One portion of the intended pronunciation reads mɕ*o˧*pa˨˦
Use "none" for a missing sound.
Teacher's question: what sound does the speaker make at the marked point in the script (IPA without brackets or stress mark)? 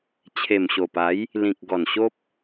o˨˩